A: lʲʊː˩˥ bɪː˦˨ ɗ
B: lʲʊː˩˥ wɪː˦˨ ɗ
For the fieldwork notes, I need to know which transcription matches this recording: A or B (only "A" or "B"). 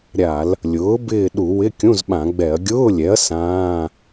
A